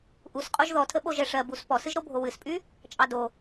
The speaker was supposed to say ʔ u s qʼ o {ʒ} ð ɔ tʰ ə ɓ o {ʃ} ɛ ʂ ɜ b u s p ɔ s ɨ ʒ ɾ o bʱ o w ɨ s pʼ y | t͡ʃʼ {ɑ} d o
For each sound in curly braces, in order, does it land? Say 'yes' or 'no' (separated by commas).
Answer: yes, no, yes